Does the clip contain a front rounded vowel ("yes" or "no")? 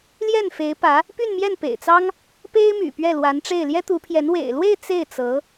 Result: yes